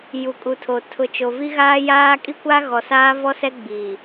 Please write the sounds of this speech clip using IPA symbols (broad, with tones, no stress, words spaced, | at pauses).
ju˨kʼu˨tʰo˨ tʰʊ˨ t͡ʃo˨vi˦ɣaː˦jaː˦ kʼi˦kʷa˦ɣɔ˨ saː˦vɔ˦sɛ˦ɡ͡bi˨